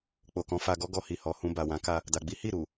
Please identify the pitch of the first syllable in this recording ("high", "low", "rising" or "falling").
low